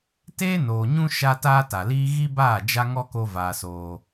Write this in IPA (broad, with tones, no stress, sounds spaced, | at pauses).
t eː˦ n oː˨ ɲ ũ˦ ʃ a˦ t aː˦ t a˨ l iː˦ ɣ i˦ b aː˦˨ d͡ʒ a˦ ŋ ɔ˦ k o˧ v aː˧ s oː˧